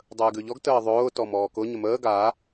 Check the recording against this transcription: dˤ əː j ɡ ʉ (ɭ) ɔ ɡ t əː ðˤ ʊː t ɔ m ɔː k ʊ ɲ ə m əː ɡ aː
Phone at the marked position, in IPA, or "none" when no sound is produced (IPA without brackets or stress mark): ʎ